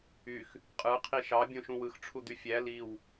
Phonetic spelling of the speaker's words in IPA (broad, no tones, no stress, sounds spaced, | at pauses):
y x | qʼ ɯ qʰ i ʃ ɑ bʲ õ ʃ ũ w ɯ x ʈ͡ʂʰ u d̪ y fʲ æ l i w